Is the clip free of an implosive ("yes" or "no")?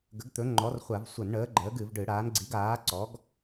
yes